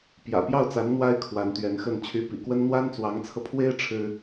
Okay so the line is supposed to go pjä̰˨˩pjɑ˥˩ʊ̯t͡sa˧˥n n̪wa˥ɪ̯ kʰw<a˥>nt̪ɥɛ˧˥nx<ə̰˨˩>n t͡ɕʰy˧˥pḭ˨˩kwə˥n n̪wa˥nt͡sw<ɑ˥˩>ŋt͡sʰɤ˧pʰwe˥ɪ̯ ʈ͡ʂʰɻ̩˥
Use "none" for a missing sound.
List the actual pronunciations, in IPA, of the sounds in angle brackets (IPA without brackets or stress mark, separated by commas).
a˧˥, ə˥˩, ɑ˧˥